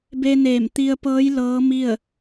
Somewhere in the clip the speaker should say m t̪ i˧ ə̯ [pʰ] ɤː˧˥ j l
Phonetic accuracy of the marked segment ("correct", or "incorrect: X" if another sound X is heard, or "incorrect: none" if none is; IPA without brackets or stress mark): incorrect: p